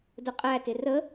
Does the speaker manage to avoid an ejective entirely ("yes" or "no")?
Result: no